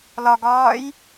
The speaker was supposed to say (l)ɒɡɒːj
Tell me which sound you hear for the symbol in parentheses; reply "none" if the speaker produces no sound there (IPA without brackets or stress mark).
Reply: l